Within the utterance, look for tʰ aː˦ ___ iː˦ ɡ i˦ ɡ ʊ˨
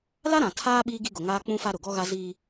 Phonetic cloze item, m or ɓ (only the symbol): ɓ